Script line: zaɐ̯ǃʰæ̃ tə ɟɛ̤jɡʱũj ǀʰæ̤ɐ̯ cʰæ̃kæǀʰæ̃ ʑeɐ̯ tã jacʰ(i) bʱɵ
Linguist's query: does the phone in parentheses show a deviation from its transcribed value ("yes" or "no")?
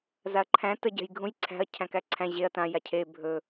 yes